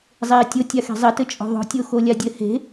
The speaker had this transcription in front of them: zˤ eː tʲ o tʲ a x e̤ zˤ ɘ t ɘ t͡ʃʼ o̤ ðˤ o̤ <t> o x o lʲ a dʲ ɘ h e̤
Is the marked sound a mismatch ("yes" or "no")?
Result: yes